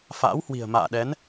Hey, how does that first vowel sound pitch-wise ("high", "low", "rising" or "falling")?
rising